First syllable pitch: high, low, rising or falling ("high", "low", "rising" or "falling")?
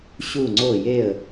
falling